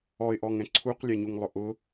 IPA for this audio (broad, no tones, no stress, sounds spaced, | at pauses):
ɔ ɪ̯ ʔ ɔ ŋ ɛ̃ ǀʰ u q lʲ ɛ ɲ u ŋ lˠ ʊ ʔ ʊ